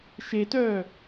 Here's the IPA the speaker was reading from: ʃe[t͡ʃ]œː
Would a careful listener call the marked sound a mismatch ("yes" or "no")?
yes